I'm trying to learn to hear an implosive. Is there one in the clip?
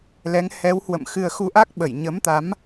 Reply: yes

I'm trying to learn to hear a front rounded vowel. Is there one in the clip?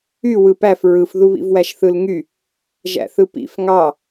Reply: yes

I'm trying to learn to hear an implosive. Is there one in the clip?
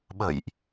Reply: yes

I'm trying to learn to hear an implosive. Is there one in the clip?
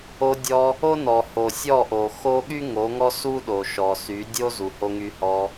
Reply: yes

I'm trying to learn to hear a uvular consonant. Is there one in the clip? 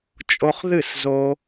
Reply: yes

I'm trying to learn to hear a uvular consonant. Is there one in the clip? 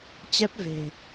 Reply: no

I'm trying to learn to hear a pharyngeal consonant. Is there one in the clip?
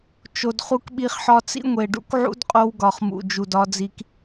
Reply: yes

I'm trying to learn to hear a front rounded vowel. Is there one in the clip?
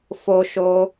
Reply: no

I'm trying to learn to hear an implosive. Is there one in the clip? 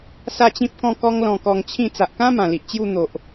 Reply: no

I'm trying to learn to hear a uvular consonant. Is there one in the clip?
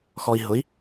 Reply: no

